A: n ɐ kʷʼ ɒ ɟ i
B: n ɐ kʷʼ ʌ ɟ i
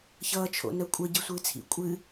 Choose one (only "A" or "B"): B